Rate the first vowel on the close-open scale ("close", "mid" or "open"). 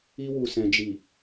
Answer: close